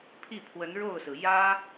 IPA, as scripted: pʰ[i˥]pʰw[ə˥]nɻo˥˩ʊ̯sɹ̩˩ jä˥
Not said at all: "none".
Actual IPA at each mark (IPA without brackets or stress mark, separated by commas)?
i˥˩, ə˧˥